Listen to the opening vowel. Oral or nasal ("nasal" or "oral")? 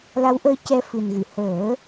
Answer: oral